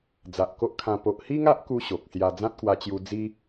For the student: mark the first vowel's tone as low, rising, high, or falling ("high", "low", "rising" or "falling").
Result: low